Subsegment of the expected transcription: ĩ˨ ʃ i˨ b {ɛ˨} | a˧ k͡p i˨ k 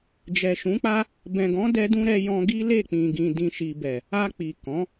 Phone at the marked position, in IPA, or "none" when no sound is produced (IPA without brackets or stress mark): ɛ˨